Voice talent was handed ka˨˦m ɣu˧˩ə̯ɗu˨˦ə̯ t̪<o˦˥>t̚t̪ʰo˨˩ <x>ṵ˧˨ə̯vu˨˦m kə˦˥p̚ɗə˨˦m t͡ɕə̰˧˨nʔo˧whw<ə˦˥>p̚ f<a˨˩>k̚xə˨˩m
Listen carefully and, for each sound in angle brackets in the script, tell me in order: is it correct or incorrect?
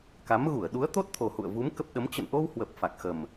correct, incorrect: h, incorrect: ə˨˩, correct

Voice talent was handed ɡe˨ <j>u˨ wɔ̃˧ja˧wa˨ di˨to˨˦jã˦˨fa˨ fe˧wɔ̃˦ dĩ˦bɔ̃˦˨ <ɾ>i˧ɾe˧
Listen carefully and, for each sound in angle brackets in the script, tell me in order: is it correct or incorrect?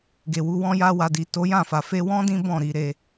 incorrect: w, correct

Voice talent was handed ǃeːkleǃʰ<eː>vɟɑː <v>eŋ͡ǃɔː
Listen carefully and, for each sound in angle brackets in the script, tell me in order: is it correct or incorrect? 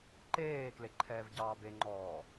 incorrect: ɛː, incorrect: b

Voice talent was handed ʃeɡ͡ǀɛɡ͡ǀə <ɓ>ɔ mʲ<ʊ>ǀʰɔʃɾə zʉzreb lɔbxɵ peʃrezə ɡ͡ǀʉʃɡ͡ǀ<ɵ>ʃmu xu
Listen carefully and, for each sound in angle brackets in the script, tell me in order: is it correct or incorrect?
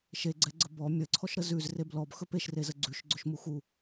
incorrect: b, incorrect: ə, correct

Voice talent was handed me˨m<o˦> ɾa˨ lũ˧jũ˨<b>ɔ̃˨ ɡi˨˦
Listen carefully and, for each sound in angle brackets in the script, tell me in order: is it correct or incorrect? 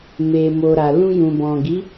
incorrect: o˨, correct

